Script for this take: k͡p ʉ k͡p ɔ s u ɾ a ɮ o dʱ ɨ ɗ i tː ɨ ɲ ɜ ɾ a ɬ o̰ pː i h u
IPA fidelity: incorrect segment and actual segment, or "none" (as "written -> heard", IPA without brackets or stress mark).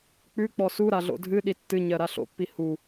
o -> o̰